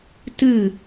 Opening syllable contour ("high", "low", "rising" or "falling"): falling